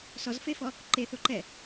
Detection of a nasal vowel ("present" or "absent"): absent